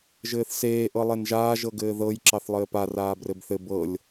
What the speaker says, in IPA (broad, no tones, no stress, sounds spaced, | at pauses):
ʒ ɘː θ s eː ʔ ɤ lˠ e n ʒ aː ʒ ɤ ɡ ɘː ð ɤ j ǁ ɑ θ lˠ ɘː p a r aː b r ɘ b θ ɘ b ɤ lʲ